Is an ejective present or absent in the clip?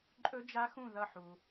present